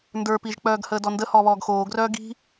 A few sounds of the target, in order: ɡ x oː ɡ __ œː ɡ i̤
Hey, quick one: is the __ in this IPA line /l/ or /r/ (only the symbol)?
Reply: r